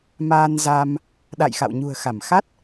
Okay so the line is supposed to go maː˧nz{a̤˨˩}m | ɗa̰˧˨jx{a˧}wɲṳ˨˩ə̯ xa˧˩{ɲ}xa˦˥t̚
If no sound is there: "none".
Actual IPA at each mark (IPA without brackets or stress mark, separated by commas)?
a˧, a̰˧˨, m